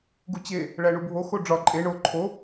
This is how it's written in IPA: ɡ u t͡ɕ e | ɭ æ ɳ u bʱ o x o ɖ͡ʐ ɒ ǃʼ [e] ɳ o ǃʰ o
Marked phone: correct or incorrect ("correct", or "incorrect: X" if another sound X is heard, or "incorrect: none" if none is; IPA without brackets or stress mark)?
correct